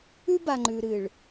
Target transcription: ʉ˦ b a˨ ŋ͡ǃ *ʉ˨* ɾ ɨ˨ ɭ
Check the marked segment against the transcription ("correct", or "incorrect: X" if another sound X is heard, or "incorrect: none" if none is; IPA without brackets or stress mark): correct